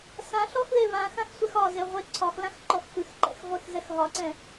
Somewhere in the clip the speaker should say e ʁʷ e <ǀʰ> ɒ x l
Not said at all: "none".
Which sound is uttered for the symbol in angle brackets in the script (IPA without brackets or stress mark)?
ǀʰ